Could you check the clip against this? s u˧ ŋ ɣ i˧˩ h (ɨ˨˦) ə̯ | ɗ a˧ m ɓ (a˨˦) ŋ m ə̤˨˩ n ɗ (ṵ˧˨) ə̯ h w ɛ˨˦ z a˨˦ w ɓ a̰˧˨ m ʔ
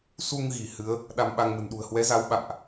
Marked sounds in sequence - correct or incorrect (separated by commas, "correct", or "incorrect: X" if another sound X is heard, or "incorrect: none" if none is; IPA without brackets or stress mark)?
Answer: correct, incorrect: a˧, incorrect: ṳ˨˩